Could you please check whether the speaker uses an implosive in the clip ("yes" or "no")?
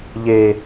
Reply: no